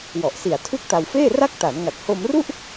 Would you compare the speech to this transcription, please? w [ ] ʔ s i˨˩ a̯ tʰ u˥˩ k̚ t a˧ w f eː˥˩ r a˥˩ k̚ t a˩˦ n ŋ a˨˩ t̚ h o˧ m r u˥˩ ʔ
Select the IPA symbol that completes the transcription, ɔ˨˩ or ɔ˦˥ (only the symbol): ɔ˨˩